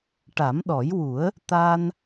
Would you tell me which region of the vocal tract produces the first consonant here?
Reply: retroflex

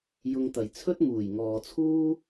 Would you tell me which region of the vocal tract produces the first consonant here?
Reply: palate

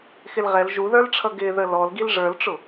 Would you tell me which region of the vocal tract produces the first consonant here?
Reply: velum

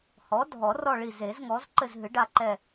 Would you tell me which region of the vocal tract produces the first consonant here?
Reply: throat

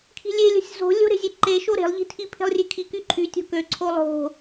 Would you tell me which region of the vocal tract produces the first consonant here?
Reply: velum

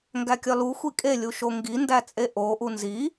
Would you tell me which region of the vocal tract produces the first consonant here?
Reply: velum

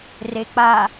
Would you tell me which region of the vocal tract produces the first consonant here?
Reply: tongue tip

